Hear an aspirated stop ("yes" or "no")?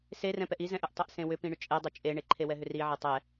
yes